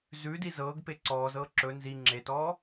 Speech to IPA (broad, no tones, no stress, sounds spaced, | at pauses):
z ʉ d i z ɤː ɡ p e ǀ ɔː z ɤː ǁ ɵ n z i ŋ͡ǁ e t ɔː